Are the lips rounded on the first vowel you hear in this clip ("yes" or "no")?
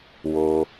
yes